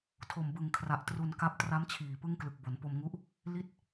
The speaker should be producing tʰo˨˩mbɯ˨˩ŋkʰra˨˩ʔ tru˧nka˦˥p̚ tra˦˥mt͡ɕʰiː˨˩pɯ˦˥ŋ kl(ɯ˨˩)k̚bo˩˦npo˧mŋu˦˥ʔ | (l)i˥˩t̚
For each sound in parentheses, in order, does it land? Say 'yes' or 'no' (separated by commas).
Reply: yes, yes